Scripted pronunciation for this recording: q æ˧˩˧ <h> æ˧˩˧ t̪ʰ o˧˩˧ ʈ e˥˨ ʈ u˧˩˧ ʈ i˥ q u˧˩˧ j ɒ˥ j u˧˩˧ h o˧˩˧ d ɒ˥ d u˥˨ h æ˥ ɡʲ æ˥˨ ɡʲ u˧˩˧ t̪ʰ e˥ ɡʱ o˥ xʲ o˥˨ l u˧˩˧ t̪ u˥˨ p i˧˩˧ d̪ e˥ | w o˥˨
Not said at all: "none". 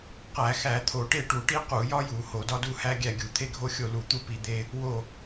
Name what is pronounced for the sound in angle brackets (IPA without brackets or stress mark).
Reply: x